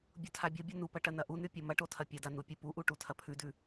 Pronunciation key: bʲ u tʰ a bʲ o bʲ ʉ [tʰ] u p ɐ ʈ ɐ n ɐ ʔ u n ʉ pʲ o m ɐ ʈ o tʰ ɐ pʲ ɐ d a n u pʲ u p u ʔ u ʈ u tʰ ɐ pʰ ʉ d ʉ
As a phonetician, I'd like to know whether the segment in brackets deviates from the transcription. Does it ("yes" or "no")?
yes